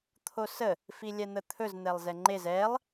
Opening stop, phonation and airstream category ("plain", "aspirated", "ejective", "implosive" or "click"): aspirated